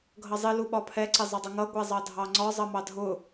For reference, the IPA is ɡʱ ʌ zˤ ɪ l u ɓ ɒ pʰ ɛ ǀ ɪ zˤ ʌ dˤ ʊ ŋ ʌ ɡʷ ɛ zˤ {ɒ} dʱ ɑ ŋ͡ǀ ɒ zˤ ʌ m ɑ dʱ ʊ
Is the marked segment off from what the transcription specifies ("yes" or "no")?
yes